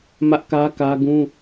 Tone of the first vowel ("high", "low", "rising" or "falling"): high